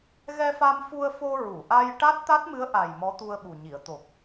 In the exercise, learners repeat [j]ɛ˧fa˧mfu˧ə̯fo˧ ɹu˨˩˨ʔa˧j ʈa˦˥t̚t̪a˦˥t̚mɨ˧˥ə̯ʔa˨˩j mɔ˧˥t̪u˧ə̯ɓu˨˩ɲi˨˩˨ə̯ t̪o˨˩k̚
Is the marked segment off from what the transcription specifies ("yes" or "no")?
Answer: yes